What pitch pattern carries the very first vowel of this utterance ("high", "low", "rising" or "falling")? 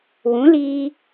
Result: rising